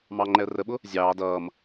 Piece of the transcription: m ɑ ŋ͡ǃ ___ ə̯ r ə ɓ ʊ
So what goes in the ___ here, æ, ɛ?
ɛ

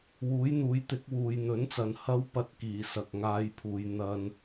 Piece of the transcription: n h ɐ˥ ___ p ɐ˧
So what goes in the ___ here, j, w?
w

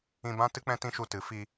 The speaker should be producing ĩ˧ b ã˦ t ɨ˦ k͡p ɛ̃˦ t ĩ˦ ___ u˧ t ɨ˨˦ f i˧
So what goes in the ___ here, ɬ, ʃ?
ʃ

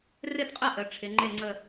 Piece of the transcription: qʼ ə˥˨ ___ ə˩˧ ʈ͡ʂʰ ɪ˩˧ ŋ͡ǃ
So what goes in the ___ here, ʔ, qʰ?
ʔ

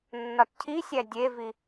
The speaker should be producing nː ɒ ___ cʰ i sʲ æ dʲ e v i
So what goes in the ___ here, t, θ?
t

